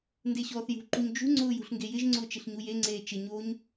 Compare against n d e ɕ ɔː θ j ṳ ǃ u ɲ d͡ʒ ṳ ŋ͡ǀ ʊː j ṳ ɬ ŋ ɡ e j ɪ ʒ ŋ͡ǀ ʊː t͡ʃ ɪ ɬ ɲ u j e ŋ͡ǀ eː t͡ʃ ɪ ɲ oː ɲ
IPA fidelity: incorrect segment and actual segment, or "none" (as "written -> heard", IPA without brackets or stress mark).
none